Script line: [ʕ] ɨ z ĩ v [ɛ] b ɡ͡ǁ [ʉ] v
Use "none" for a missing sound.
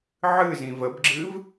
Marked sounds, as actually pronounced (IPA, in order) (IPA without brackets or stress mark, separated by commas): ʕ, ə, ɨ